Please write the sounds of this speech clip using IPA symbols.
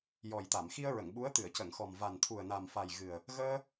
j ɔ˨˩ j t̪ a˨˩˨ m x i˧ ə̯ ɹ ə˨˩˨ ŋ ɓ u˧˥ ə̯ t̪ ɨ˨˩˨ ə̯ c ə˨˩˨ ŋ x ɔ˨˩ m v a˨˩ n t̪ʰ u˨˩ ə̯ n a˨˩ m f a˨˩ j ɣ ɨ˨˩ ə̯ | ɣ əː˧

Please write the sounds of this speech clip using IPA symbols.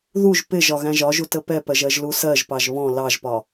ð u ʒ p ɪ ʒ ɒ ɣ æ̃ ʒ ɒ ʒ u t ə p ɛ p ɜ ʒ ɜ ʒ l u s ɜ ʒ p ɑ ʒ β ɔ̃ l ɑ ʒ p ɒ

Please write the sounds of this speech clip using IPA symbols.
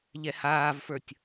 ʎ ɛ h aː v f ə˞ tʲ

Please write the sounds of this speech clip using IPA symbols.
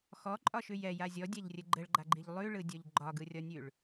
x ɔ ǃʼ ɒ ʃ ʉ j ɛ j a zʲ ɔ dʲ a ʎ rʲ ɘ ɡ͡ǃ ɘ ɭ ɡ͡ǃ a ɡ͡ǃ i ʎ lˠ ʉ ɭ ɯ dʲ ɔ ʎ ɡ͡ǃ ɒ ɡ ɯ rʲ ɒ nʲ ʉ ɭ

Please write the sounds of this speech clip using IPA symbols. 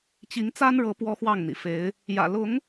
t͡ɕ i˨˦ ŋ t͡s a˦ n ɻ ɤ˨˦ p w ɔ˦ x w ɑ˥˨ ŋ n̪ ḭ˨˩ f e˨˦ ɪ̯ | j ä̰˨˩ l ʊ˨˦ ŋ

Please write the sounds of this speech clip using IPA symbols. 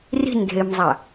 r i̤ n dʱ e m zˤ a

